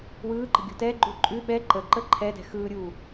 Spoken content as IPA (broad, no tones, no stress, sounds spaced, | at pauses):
w ɯː ǃ ə̤ ɡʲ ṳ t ɛ ɡ͡ǃ ʉ ǃʼ ʉ ɓ ɛ ǃ ə ǃ ə ǃʰ ɛ d ɛ̤ x ɯː ɾʲ uː